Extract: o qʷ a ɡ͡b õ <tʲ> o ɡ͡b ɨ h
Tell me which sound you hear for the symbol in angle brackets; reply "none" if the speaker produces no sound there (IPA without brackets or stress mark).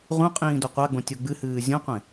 tʲ